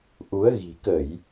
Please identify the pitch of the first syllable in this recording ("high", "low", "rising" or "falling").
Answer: rising